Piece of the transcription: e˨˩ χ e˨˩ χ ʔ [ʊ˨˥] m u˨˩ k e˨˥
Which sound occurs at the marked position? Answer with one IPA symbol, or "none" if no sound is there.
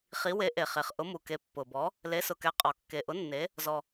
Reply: ʊ˨˥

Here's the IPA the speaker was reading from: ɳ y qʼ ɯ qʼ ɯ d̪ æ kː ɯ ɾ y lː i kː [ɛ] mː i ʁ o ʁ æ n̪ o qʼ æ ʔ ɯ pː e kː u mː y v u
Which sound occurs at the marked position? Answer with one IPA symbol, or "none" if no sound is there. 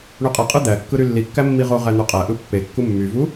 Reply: æ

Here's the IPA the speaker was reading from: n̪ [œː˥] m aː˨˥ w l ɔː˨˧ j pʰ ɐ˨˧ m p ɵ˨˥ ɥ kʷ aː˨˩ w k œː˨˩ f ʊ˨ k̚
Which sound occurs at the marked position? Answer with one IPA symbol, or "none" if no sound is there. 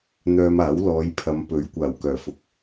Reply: œː˧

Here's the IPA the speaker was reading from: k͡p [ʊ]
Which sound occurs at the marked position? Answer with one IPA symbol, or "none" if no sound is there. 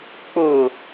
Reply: ʊ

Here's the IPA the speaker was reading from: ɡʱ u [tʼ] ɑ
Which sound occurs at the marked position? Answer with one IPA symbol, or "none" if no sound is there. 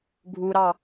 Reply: ɾ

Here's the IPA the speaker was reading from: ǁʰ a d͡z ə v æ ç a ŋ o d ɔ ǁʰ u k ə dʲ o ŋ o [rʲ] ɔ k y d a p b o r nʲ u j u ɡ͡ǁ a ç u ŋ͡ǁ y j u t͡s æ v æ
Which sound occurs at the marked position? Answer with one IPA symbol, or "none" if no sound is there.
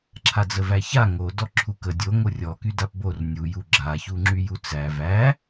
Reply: rʲ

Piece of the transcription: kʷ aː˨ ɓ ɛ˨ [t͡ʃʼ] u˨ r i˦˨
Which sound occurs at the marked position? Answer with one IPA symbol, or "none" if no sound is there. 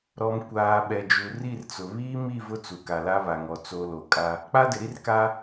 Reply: d͡ʒ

